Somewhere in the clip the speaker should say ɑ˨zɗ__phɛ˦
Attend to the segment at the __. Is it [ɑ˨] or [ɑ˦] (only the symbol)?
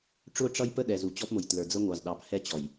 ɑ˨